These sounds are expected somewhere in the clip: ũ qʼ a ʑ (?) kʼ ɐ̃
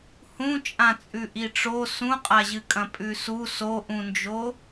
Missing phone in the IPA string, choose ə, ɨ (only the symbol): ɨ